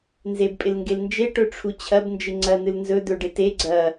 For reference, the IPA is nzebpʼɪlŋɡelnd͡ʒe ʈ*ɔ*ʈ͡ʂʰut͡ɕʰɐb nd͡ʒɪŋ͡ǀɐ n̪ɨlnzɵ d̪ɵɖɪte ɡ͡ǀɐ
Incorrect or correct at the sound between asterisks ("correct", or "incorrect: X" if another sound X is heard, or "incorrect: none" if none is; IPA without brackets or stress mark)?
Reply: incorrect: ɵ